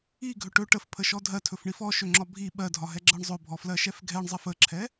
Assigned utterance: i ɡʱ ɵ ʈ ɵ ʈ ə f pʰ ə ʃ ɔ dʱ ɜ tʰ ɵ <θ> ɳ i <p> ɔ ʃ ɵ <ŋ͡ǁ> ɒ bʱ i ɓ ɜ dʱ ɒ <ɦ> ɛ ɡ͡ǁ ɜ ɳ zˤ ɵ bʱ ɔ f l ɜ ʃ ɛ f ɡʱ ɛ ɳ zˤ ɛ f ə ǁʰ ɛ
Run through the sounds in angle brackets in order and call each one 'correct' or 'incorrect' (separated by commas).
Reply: incorrect, incorrect, correct, correct